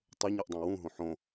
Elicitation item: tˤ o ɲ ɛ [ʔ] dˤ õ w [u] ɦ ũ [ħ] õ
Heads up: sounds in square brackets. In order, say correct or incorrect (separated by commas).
correct, incorrect, correct